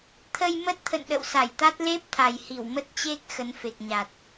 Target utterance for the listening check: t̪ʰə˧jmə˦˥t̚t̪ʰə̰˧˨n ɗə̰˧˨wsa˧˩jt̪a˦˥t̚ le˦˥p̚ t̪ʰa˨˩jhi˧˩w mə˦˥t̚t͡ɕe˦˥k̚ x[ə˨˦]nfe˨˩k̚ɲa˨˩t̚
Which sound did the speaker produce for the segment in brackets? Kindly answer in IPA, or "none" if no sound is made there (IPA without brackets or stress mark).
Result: ə˨˦